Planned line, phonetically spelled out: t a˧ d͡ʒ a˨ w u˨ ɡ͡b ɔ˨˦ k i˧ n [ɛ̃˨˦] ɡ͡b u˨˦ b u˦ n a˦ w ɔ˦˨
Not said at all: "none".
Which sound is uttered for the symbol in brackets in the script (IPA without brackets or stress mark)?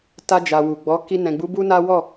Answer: ɛ̃˨